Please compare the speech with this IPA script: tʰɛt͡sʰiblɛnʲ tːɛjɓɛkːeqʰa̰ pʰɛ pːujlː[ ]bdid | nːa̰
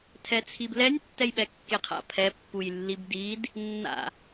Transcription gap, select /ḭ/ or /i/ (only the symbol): i